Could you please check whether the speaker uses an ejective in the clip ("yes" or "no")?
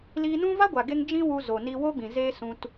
no